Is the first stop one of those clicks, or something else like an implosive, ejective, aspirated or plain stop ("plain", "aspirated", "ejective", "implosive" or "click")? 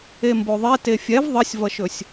plain